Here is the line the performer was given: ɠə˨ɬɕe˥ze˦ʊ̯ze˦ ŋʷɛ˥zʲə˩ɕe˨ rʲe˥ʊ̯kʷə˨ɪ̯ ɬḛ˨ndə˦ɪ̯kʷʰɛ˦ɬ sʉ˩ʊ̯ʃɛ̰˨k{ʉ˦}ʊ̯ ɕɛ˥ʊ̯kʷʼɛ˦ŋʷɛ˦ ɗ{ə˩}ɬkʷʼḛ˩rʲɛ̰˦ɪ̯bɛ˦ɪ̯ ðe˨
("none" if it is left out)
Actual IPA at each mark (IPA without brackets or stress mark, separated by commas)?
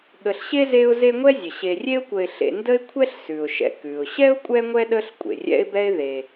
ʉ˩, ə˦